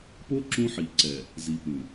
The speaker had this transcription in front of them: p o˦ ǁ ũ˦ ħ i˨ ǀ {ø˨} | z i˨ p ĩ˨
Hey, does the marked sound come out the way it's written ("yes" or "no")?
no